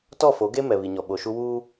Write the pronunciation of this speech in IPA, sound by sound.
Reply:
t ɔ˦˨ f o˨˦ ɡ e˦ m ɛ˨ β i˨ ɲ ɔ˨ ɓ o˨ ʃ u˦ w uː˦

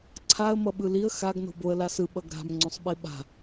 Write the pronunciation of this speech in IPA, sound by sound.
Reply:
ǀʰ a ə̯ m ʌ ɓ ɯ l i ə̯ x a ɡ n o̤ b o ə̯ l a s ɯ ɓ ʌ ɡ ɾ a̤ m ŋ͡ǀ õ sˤ ɓ i ɓ a̤

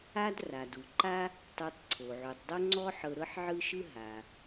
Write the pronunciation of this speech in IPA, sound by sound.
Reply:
a˥ d r a˩ d u˩ ǃ a˥ | tˤ e˧ tˤ ǀʰ o˩ ʕ u˩ tˤ dˤ o˥ ŋ͡ǀ ɔ˥ ħ ɤ˧ ɾ ɤ˥ ħ ʕ ɯ˥ ʃ ɯ˥ ɦ a˩

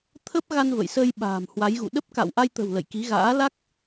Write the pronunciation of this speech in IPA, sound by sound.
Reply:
t̪ʰ ə˦˥ p̚ ɣ a˧ n v ə̰˧˨ j s ə˧ j ɓ a̤ː˨˩ m h w a˨˦ j ɣ ṵ˧˨ ɗ ə˦˥ p̚ k a̰˧˨ w ʔ a˧ j t̪ ə̤˨˩ w l ə̰˧˨ j k i˨˦ ɣ a̰ː˧˥ l a˦˥ k̚

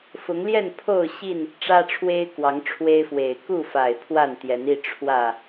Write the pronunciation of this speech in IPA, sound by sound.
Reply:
f ʊ˨˦ ŋ l j ɛ˥˨ n pʰ o˥˨ ʊ̯ ɕ i˥˨ n | ʈ͡ʂ ä˦ ʈ͡ʂʰ w e˦ ɪ̯ k w ɑ˨˦ ŋ ʈ͡ʂʰ w e˦ ɪ̯ f w e˨˩ ɪ̯ k u˥˨ f a˨˩ ɪ̯ pʰ w a˥˨ n t̪ j ɛ˨˦ n i˥˨ ʈ͡ʂʰ w ä˨˩

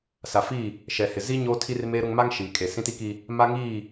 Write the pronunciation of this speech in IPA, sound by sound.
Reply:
s a˨ f i˦˨ | ʃ ɛ˨ h ɪ˨ z i˦ ɲ oː˦ tʰ i˦ r m eː˦ ɾ ʊ˦ ŋ m a˦ ŋ ʃ iː˨ kʼ e˨ s ĩ˦ t i˦ k i˦ | m a˦ ŋ iː˦˨

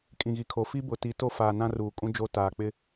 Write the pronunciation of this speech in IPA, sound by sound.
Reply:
kʼ ĩ˨ ɣ i˨ kʰ o˨ f i˦ b ʊ˨ t i˨˦ t o˦ f aː˨ n ã˦ r uː˨ kʼ ũ˦ d͡ʒ o˦ t aː˨ k͡p ɪ˦

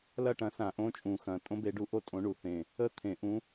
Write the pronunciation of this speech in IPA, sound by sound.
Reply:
l ɐ˥˧ ʈ ɐ̃˨˥ s ã˨˩˦ ʔ õ˨˥ t͡ʃʼ ũ˨˩ x ɐ̃˨˩ tʼ õ˥ b e˨˥ ɖ u˨˥ ʔ o˥ tʼ õ˨˥ ɳ u˨˩ θ ẽ˨˩ | ə˥˧ t̪ʰ ẽ˨˩˦ ʔ ũ˨˥

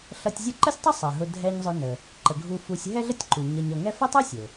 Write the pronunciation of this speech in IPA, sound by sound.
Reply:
ɬ ʌ˨ tʲ zʲ ʌ˦ ǃ ə˥ sʲ tˤ ʊ˥ sˤ ɛ˩ ɦ ʊ˨ dʱ ɛ˨ ɲ zˤ ʊ˨ n ə˩ | ǃ ə˩ ɡʱ u˨ f u˨ sʲ ɦ ɛ˦ ɮ ə˦ tʲ ǃ u˩ ɲ ʌ˨ ɲ ʌ˨ ŋ ɛ˦ f ə˥ tˤ u˥ sʲ ʊ˩

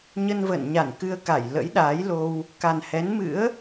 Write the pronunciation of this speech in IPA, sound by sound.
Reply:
ɲ ə˧ n v ə̰ː˧˨ n ɲ a˧˩ n k ɨ˧ ə̯ k a˧˩ j l ə̰˧˥ j ɗ aː˨˦ j l o˧ w | k a˨˩ n h ɛ˨˦ n m ɨ̰˧˥ ə̯

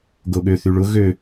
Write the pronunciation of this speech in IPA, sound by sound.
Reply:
ɡ o ɠ ø θ y ɭ ʊ ɣ ø

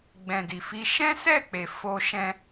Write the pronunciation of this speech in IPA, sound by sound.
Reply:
ɡ͡b ɛ̃˨ d i˨ f i˧ ʃ ɛ̃˦ s ɛ˦˨ k͡p e˨ f o˧ ʃ ɛ̃˧

